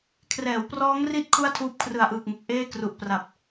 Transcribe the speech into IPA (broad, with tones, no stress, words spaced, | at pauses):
kʰrɛː˩˦wprɔː˦˥ŋri˦˥t̚ kʰu˥˩a̯tʰuː˦˥p̚ kʰrɯ˨˩a̯ʔɯː˨˩k̚ŋe˨˩k̚ ʔeː˥˩kru˨˩ʔpra˨˩p̚